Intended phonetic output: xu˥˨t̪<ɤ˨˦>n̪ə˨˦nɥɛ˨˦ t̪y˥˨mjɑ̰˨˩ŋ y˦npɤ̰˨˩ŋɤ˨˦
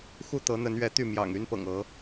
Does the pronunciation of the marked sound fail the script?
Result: no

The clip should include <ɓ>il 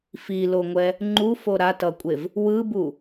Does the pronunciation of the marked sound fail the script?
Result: yes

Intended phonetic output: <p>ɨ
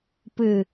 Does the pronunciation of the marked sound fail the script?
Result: no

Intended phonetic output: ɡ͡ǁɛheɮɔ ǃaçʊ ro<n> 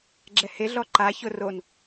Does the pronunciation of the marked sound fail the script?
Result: no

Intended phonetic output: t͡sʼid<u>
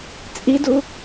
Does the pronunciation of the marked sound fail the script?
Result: no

